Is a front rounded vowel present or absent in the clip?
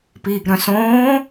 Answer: present